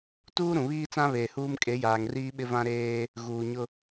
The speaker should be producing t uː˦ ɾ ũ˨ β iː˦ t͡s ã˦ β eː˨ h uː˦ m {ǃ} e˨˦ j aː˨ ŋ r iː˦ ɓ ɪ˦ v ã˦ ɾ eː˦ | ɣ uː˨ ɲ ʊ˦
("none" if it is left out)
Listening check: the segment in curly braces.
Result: kʼ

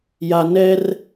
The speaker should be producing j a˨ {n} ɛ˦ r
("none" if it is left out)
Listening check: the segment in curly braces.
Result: n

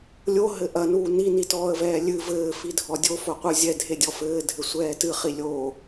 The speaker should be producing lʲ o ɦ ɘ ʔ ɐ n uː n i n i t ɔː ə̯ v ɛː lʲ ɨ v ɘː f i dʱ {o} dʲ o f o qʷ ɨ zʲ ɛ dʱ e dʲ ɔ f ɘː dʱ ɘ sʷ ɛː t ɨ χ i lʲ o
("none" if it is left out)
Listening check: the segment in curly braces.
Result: ɔ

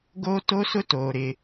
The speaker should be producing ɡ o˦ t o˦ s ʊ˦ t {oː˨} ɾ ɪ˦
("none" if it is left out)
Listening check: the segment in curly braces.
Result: oː˨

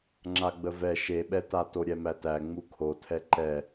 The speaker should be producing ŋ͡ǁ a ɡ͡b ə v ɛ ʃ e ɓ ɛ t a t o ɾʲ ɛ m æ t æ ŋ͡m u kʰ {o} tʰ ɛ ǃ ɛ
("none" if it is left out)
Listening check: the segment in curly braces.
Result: o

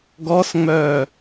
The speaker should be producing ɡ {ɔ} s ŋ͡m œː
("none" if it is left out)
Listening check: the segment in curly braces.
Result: ɔ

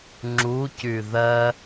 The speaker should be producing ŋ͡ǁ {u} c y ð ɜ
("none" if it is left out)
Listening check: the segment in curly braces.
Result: u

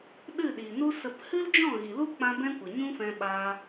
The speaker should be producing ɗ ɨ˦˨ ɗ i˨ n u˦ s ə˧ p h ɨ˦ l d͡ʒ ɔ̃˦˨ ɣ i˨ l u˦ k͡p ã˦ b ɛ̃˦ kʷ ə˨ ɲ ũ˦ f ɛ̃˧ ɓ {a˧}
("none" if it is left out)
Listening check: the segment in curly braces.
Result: a˧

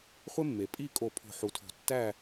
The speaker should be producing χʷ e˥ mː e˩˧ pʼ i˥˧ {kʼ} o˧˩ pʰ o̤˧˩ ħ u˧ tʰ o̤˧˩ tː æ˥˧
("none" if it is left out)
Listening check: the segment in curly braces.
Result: kʼ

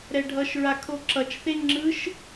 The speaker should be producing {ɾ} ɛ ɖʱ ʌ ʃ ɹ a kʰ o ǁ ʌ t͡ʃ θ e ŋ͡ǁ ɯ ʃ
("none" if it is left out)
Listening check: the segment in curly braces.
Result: ɾ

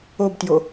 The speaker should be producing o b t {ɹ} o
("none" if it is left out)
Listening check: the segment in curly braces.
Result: j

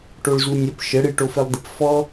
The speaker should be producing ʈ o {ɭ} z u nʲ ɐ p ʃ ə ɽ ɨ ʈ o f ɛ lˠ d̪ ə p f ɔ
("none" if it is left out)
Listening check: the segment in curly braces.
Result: ɭ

